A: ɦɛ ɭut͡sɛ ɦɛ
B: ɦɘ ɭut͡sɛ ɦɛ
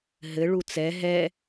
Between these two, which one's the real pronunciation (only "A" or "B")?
B